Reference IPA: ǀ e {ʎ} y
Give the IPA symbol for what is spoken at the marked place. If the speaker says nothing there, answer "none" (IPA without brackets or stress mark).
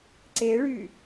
ɭ